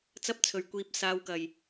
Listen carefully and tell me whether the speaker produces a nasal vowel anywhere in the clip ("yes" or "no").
no